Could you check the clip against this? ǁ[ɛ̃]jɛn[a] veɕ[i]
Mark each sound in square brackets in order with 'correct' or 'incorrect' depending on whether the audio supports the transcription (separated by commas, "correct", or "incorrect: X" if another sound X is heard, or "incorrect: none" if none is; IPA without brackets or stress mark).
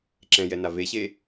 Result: correct, correct, incorrect: e